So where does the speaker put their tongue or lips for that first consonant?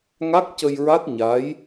velum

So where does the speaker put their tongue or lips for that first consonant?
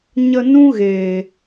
palate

